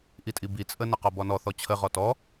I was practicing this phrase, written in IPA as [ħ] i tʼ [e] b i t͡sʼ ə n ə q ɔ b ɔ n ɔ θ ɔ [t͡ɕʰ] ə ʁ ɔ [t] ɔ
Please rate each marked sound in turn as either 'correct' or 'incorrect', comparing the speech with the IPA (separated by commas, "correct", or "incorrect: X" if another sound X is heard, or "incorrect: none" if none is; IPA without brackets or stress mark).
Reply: incorrect: ʔ, incorrect: i, correct, correct